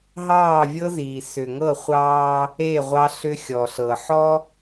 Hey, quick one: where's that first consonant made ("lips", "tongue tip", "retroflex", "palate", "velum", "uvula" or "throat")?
throat